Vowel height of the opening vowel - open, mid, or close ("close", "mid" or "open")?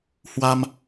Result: open